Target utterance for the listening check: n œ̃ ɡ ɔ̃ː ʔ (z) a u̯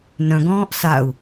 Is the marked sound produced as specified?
no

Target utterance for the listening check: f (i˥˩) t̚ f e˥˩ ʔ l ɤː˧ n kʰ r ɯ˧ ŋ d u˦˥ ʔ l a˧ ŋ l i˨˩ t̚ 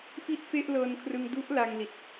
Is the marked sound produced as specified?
yes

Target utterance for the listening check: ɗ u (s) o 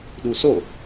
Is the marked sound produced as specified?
yes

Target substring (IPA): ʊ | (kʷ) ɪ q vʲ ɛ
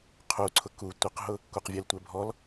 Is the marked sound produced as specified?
yes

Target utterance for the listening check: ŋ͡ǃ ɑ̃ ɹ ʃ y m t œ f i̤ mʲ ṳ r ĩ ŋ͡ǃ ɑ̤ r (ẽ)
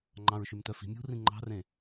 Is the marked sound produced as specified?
yes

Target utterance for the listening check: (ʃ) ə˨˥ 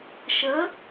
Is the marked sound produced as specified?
yes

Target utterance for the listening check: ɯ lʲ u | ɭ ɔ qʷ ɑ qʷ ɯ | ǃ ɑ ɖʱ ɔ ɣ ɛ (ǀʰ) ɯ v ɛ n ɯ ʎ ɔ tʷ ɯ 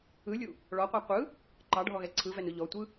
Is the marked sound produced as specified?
yes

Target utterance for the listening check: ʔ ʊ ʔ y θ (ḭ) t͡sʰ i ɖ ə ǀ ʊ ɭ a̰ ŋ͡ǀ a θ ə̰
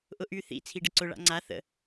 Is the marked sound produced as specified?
yes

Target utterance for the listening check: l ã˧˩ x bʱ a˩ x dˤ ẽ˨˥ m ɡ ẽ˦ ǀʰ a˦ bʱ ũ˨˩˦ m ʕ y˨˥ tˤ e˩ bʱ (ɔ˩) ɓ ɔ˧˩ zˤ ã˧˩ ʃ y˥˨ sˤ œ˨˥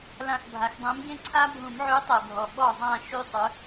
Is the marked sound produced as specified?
yes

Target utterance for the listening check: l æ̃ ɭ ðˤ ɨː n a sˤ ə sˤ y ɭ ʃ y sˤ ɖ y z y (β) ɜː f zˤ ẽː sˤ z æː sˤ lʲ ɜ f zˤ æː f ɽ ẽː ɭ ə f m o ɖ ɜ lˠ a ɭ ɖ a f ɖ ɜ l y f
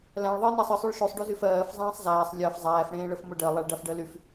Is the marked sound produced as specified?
no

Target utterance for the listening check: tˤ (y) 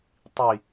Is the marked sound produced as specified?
no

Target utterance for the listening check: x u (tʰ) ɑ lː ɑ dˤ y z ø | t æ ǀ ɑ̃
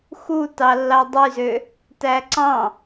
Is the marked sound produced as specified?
no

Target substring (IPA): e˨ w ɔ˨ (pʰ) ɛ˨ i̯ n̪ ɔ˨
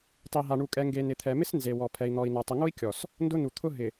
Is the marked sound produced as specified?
yes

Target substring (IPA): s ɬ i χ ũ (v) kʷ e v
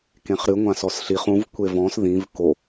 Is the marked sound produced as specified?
yes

